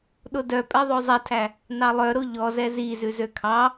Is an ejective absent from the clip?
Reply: no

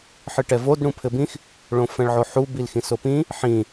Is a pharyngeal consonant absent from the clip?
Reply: no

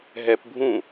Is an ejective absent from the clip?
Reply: yes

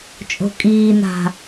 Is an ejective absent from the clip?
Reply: no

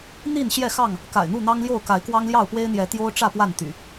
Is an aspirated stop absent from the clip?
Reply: yes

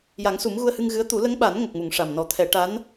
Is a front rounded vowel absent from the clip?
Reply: yes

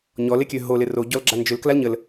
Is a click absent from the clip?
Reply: no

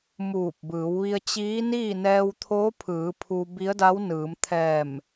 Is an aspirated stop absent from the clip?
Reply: no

